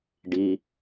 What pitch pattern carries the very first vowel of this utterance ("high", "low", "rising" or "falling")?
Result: low